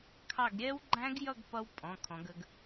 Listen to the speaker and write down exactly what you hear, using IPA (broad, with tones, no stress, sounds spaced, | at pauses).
kʰ ɑ˦˨ ɡ ɾʲ ɛ˦˥ w ɡ͡ǃ æ̃˦˥ ɡ j ʌ˦˨ ɡ p ʌ˦˥ w pʼ ɔ̃˩˧˩ kʰ ɔ̃˩˧ ɡ ə˩˧ ɡ